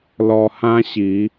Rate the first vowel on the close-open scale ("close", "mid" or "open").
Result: mid